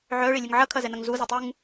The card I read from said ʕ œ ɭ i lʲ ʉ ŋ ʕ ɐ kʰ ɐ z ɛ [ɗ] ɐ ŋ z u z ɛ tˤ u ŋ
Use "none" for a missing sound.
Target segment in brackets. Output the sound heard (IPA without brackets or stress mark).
n